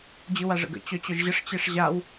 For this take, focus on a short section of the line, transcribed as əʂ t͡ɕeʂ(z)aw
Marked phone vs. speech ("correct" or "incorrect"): incorrect